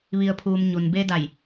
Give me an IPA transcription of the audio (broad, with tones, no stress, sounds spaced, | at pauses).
ʋ i˩ ə̯ pʰ uː˩ m ɲ u˩ n b e˧ d a˧˩ j